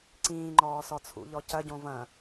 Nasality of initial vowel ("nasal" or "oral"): nasal